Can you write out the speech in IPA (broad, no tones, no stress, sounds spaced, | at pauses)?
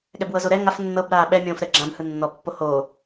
ɠ ɛ b w ɤ z o ɾ ɛ ŋ a f nː ɤ b ɾ aː ɓ ɛ mʲ õː f ɾ ɛ ɡ͡ǁ ã b h ɯ nː ɔ pː o h o